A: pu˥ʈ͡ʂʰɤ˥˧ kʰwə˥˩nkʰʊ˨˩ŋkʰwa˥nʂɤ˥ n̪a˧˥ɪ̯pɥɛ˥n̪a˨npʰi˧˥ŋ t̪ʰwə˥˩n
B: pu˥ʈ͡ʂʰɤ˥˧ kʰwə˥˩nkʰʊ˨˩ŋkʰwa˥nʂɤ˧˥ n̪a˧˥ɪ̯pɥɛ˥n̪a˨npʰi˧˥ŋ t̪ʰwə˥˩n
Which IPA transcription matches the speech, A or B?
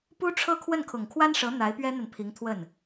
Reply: B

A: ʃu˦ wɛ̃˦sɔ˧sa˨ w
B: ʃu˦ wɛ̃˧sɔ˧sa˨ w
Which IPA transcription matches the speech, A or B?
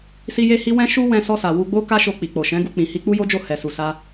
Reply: B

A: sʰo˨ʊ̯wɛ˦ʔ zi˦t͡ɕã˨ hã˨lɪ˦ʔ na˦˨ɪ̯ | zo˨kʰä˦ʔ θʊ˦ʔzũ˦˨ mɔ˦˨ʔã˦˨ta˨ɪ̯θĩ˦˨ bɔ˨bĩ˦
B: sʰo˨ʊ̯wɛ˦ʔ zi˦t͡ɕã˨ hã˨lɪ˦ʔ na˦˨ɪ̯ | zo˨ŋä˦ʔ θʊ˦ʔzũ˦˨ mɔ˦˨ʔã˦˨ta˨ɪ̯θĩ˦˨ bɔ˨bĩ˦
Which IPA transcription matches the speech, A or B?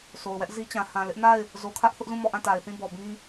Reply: A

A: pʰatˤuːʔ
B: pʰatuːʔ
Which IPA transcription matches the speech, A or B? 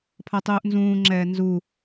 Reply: A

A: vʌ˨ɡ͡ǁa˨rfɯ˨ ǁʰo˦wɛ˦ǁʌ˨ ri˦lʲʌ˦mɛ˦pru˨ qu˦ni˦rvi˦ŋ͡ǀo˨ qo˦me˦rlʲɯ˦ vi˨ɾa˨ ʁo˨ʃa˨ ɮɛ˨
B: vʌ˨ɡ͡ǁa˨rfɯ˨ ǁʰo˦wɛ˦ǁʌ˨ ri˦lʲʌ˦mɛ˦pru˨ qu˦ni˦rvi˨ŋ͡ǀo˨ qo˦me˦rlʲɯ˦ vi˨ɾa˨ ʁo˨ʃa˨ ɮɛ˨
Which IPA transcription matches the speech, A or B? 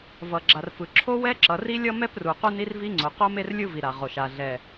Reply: A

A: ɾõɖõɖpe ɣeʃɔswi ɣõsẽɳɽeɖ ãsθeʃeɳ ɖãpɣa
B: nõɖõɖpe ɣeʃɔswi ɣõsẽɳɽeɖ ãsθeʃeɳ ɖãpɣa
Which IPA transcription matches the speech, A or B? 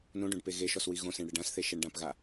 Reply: B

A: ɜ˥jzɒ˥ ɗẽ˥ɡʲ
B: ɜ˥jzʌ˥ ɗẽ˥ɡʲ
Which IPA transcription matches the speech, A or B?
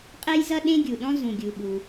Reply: B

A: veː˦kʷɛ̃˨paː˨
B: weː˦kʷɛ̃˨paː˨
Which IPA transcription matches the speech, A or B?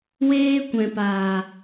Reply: B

